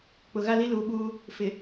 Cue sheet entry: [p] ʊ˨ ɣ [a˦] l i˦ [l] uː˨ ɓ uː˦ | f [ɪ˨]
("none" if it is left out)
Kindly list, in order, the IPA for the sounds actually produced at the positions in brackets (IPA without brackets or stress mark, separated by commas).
k͡p, a˦, l, ɪ˨